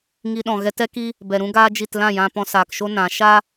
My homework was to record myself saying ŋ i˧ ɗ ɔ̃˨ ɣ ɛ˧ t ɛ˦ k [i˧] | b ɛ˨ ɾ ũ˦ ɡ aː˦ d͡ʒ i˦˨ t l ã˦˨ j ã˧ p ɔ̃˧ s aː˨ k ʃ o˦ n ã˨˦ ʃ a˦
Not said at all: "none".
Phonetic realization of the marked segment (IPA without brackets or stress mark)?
i˦